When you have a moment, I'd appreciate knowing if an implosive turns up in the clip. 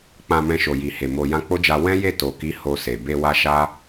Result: no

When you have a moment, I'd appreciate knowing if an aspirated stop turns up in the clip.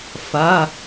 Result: no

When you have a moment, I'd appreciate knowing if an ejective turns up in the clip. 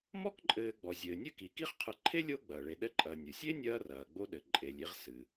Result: yes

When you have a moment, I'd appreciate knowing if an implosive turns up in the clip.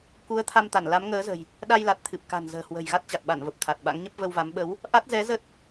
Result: yes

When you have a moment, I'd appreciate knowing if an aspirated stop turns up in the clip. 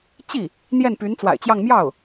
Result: no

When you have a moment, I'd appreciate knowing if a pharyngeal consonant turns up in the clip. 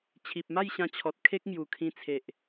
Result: no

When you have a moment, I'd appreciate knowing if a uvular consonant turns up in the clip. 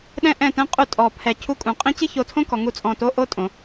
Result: yes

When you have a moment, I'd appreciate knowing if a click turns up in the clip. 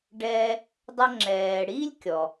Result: yes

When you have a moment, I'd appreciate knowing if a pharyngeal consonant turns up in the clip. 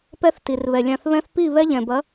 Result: no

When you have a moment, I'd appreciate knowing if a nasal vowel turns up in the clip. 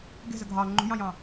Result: yes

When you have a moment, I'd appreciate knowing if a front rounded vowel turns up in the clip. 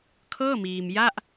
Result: no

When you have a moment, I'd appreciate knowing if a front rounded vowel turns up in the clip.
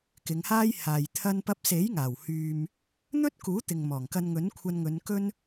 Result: yes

